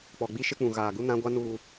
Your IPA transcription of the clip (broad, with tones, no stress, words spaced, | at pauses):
k͡pɔ˨ɡ͡bi˦ʃɪ˦k͡pũ˨ ɣaː˨ɡu˦ nã˦ɡʷa˦ nuː˨